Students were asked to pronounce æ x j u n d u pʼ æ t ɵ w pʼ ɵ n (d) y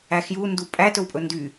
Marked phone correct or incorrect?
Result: correct